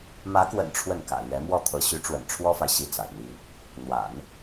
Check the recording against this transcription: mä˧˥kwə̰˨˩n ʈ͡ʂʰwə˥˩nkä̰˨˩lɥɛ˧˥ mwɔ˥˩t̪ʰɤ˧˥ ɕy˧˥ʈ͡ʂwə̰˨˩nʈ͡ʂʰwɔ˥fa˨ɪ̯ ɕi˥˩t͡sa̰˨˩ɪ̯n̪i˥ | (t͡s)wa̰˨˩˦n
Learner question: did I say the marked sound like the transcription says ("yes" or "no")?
no